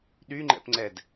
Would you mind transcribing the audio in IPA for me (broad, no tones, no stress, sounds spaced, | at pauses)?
ɗ y ŋ͡ǃ ɛ̰ p ŋ͡ǀ ɛ d